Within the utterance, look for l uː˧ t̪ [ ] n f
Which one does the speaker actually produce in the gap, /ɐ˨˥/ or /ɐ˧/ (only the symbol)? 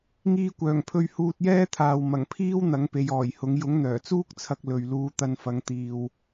ɐ˧